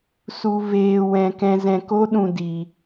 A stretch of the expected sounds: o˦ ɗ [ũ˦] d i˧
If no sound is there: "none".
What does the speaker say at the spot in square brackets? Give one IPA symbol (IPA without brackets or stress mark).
ũ˧